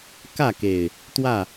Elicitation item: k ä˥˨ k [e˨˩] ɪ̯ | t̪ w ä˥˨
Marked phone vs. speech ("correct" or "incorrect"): correct